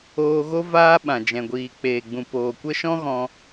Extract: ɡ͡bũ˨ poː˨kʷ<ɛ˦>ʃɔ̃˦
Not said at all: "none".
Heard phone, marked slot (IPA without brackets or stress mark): ə˦